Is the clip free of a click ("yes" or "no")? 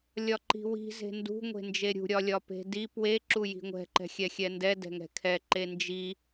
no